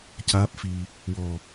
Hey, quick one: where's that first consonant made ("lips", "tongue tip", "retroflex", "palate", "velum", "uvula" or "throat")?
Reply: palate